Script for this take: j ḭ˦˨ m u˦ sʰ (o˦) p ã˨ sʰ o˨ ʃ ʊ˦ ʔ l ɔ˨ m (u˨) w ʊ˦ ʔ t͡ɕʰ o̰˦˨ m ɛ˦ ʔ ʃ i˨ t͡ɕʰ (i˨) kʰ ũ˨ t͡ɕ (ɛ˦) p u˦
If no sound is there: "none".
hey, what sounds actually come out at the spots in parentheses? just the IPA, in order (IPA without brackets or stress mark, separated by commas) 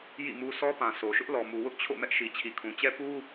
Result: ɔ˦, u˨, i˨, ɛ˦